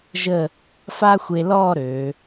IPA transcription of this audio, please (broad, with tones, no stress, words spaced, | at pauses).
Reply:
ʒə˥˧ | fa˥xʷe˧lɔ˥˧ ɾø˩˧